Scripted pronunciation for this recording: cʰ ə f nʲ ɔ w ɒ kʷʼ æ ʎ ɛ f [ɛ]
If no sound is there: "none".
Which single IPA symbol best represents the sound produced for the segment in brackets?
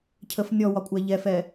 ɛ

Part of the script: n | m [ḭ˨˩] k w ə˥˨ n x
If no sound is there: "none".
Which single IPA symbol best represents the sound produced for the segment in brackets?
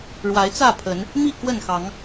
i˥˨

